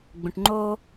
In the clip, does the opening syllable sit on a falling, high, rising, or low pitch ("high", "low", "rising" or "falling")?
low